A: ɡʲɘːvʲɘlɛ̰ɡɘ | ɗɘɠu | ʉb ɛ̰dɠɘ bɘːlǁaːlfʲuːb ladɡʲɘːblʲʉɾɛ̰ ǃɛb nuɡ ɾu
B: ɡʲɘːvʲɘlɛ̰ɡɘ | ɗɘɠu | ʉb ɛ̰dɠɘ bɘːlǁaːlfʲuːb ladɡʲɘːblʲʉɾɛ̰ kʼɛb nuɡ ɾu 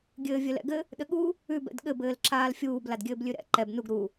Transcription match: A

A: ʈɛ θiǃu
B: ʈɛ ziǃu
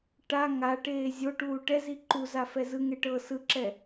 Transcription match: B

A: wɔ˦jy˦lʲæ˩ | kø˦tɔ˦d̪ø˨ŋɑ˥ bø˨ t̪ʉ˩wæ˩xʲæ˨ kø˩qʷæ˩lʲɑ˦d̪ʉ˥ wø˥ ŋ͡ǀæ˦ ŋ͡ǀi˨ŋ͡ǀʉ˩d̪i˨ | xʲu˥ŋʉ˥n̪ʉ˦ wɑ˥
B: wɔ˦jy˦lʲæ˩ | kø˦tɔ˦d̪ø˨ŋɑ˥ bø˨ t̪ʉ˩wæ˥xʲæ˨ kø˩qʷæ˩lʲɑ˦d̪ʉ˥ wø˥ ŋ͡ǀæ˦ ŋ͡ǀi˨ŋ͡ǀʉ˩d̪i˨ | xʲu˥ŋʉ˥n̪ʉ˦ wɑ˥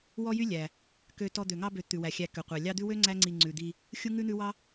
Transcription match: A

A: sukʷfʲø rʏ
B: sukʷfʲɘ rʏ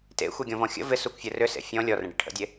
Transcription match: B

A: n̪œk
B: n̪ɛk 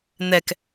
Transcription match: B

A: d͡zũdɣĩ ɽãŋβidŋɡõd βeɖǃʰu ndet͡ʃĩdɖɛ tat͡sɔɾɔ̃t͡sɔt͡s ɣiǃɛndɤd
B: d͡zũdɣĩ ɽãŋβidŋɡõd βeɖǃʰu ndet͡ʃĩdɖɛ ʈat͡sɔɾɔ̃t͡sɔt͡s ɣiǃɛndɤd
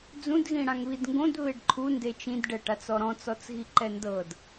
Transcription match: B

